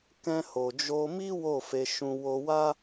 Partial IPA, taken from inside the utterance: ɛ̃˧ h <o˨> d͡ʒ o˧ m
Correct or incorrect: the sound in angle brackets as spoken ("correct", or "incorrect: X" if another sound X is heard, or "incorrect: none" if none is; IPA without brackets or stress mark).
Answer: correct